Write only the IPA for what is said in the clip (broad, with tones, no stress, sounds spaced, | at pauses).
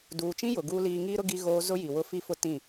d uː˨ t͡ʃ ĩ˦ j ʊ˨ ɡ uː˦ l iː˦ ŋ iː˦ ɾ ʊ˦ ɡ i˦ ɣ oː˦ z ʊ˦ j i˨ w ʊ˦ f i˦ f ʊ˦ t ĩ˦˨